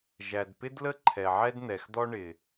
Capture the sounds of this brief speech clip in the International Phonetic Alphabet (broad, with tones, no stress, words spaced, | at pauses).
ʒæ˩d pɪ˥dlə˥ ǃʰɛ˩ʕɛ˥dn̪ɛ˩xd̪ɔ˥ ɳɪ˩